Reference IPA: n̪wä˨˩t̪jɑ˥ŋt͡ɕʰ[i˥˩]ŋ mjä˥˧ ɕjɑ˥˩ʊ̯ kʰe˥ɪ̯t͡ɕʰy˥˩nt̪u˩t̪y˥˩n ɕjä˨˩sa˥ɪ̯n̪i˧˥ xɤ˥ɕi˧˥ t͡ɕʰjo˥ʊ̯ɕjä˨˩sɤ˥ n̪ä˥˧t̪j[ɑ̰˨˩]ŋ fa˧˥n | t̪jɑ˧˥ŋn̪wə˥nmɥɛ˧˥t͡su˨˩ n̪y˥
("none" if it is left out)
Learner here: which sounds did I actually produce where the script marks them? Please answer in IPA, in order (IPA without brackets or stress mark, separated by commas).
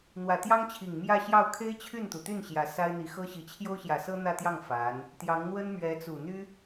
i˨˩, ɑ˥˩